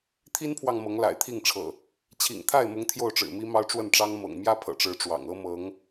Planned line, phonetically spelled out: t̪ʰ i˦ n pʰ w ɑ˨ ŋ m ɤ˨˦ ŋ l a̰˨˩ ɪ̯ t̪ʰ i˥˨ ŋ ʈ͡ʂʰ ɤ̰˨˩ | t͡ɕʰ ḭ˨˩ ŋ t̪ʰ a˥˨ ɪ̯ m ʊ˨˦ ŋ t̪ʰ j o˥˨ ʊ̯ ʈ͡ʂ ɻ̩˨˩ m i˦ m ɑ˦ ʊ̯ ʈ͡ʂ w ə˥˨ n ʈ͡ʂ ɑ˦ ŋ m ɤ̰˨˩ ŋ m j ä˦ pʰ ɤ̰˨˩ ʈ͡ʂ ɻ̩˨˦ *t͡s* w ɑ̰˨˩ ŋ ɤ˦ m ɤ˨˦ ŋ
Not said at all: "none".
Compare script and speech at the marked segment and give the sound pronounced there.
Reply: ʈ͡ʂ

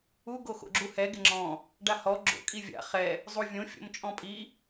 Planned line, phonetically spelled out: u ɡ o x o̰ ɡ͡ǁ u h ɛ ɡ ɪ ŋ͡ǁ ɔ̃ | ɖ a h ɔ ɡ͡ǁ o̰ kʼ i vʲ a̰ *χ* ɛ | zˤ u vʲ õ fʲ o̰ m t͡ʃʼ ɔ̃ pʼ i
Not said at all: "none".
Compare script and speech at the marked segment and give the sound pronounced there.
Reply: χ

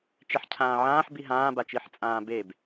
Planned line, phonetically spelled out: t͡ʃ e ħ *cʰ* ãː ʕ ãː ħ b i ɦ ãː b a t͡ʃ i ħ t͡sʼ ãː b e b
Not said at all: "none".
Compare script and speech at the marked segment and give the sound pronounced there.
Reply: cʰ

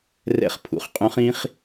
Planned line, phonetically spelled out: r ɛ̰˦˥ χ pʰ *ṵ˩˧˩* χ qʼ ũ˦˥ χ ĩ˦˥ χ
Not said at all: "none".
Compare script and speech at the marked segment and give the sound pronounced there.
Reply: ṵ˩˧˩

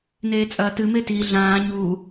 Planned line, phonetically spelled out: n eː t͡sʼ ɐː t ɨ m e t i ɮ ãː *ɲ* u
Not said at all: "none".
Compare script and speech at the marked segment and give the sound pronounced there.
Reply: ɲ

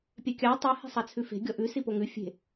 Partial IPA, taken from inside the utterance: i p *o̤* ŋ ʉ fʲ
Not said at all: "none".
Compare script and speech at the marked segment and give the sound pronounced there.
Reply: o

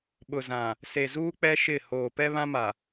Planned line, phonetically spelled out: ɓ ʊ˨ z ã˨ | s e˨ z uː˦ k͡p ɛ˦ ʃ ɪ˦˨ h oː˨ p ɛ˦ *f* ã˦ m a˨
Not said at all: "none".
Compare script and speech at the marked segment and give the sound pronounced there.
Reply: β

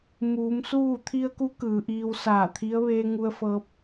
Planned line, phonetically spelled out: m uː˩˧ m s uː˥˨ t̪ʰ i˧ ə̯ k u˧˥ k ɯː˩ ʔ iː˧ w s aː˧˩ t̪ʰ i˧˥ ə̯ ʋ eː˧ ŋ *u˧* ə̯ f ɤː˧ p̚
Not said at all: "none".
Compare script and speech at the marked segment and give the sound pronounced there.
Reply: u˧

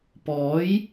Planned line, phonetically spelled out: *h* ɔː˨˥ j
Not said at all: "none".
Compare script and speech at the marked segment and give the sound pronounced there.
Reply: p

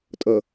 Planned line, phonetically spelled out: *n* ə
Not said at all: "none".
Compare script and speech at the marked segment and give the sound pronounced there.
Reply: tʼ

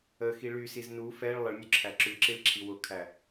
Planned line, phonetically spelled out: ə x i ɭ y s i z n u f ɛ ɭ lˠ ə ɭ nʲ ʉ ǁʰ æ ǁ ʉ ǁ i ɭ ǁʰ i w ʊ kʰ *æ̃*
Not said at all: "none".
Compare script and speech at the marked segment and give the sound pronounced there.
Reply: æ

